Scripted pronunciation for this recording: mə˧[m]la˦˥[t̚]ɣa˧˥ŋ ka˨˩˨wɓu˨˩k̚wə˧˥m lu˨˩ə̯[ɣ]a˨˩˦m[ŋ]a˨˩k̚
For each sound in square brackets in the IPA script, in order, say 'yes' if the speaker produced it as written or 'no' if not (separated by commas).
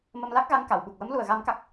yes, no, yes, no